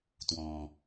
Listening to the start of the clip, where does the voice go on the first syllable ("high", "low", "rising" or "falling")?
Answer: low